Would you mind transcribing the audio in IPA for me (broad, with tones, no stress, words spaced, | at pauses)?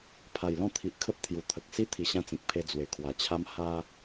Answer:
pʰa˨˩jlɔ̃˥˧t̪ʰi˨ʔ kʰə˦p̚t̪ʰju˨˩ t̪ʰə˨k̚si˦ t̪ʰi˧ɕã˦t͡sĩ˨k̚ pʰe˧d͡zwe˨˩kʰwa˨˩t͡ɕʰa˦m ha˦